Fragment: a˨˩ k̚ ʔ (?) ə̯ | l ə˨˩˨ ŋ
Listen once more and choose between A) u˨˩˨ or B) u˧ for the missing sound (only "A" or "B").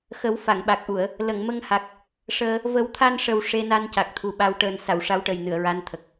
A